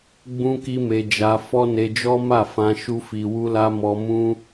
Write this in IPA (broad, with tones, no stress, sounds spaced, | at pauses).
ɡ͡b ũ˦ k i˦ m e˧ d͡ʒ a˧ f ɔ˦ n e˧ d͡ʒ ɔ˦ m a˦˨ f ã˧ ʃ u˦ f i˧ w u˦ l a˦ m ɔ˧ m ũ˦